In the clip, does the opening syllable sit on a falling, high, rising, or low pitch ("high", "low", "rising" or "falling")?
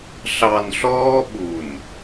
low